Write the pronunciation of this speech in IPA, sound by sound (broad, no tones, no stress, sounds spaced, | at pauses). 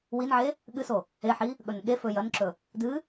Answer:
w i n ʕ e | ɠ ɨ s o | e ħ i | ɠ ɵ n ɠ e f ɵ j ɐ n ǁ ɵ | d ɨ